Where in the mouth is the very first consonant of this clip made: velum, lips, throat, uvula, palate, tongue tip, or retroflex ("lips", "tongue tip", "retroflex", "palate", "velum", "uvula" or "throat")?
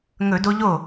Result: velum